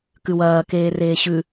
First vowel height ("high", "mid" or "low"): high